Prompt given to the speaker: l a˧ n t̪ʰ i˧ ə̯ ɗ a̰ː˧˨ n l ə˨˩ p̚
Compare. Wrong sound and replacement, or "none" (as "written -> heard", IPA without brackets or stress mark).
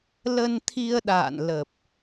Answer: a˧ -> ə˧